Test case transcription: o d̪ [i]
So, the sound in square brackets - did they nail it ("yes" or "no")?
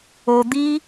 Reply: yes